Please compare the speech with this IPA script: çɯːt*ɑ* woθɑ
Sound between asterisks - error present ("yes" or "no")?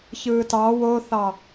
no